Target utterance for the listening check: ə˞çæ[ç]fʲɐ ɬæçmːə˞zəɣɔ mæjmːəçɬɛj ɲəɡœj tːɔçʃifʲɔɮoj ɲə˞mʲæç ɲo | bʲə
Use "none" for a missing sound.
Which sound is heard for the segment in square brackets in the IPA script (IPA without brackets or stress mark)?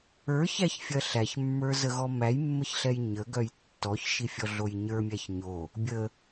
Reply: ç